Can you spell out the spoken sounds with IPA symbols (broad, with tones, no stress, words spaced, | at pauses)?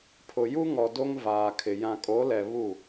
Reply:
pʰʊ˨ju˦ŋɔ˨ do˦ŋvaː˨kʰɪ˨ jã˨kʼo˨˦lɛ˨ βu˦˨